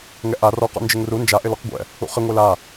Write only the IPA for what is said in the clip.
ŋɛʔa rɔqɔ̰ nd͡ʒɪŋru nd͡ʒaʔɪlɔq ɡʷɛ̰ | ṵχɪ ŋʷela

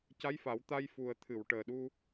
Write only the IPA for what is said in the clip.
ca˧˥jfa˨˩˦w t̪a˧jfu˨˩ə̯t̪ʰɨ˨˩˨w ʈəː˨˩ɗu˧

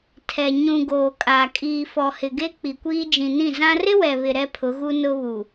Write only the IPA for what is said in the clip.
tʰɛ˨ ɲũ˨ ɡoː˨kʼa˨ kʼiː˨fɔ˨ hɪ˨ɡe˦ k͡pi˨kʷiː˦ d͡ʒĩ˨nĩ˦˨zã˦ rɪ˦wɛ˨βɪ˨ ɾɛ˦pʰʊ˨˦ɣu˦ nʊ˦βu˨

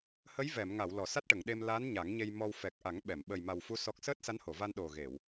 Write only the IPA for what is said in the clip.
hə˧˥jvɛ˨˩˨mŋa˨˩˨w lɔ˨˩˨sa˦˥t̚ʈə˨˩˨ŋɗe˧m la˧˥n ɲa˨˩˦ŋɲe˧j mɔ˧w fɛ˨˩k̚ʔa˨˩˦ŋ ɓɛ˨˩˨m ɓə˨˩jma˨˩wfu˧˥ sɔ˦˥k̚ səː˦˥t̚sa˧˥nho˨˩˨va˧n ɗo˨˩ɣe˨˩˨w

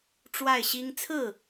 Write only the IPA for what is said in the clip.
ʈ͡ʂwa˥˩ɪ̯ɕi˥ŋ t͡sʰɹ̩˥˩

